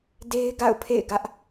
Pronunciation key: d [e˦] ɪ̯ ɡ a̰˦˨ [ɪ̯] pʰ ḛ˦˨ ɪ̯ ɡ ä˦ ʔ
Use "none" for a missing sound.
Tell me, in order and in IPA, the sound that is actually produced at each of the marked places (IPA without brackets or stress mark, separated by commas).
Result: e˦, ʊ̯